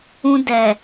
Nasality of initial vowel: nasal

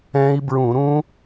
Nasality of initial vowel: nasal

